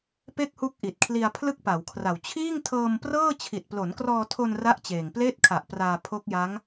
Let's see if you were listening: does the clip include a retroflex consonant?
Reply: no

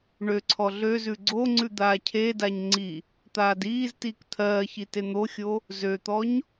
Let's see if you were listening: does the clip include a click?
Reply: yes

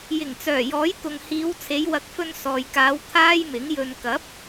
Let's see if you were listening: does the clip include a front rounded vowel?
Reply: yes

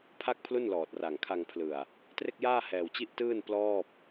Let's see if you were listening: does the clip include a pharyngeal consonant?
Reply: no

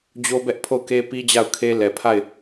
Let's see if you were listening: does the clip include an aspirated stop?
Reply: yes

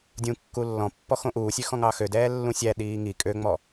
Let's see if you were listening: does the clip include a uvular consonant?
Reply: no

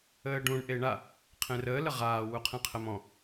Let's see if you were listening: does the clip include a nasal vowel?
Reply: yes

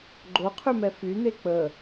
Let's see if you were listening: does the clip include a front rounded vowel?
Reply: yes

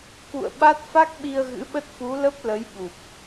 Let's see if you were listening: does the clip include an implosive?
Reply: yes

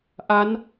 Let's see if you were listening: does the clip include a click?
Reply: no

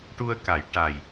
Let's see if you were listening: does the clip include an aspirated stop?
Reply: no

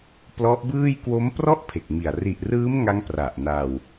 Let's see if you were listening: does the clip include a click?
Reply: no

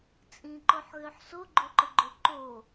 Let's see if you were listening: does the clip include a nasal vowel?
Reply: yes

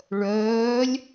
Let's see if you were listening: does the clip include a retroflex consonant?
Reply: yes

